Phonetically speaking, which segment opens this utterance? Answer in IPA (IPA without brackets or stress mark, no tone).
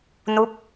n